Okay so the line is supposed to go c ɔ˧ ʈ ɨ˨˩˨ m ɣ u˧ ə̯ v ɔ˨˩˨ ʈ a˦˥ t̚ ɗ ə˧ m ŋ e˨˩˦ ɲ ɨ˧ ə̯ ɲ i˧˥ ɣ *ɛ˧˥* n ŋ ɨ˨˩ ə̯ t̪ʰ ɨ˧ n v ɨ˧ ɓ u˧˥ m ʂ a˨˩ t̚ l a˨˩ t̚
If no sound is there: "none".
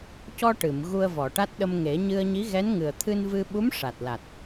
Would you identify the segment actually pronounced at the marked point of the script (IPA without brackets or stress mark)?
ɛ˧˥